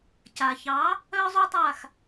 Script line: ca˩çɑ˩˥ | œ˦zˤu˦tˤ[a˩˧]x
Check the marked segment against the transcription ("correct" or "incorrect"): incorrect